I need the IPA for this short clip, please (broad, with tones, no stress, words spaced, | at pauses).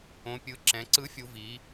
õ˩˧pʲɯ˩˧ ǁɛ̃˩˧ ǀɯ˨˥fʲu˩˧viː˩˧